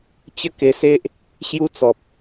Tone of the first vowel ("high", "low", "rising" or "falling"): falling